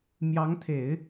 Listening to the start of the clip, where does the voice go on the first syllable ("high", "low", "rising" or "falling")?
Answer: rising